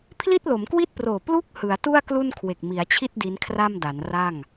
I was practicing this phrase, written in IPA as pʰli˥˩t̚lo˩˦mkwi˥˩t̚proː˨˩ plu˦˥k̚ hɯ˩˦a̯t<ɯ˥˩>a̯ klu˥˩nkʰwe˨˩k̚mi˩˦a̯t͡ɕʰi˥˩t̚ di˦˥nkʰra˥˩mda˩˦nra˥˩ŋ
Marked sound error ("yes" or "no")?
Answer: yes